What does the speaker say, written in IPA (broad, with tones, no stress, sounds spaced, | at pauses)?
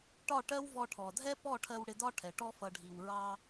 ʈ ɒ˦˨ ʈ ɜ˦ w v ɔ˧ ʈʰ ɔ˨ dʱ ɛ˦ p ɔ˦˨ ʈʰ ɜ˧ w ɽ ɪ˧ d ɒ˦ ʈʰ ɛ˨ ʈ ɔ˧ f ʌ˨ ɖʱ i˨ w ɹ ɑ˧